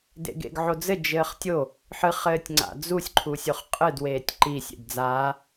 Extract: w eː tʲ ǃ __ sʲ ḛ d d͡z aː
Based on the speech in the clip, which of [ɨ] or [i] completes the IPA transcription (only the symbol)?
i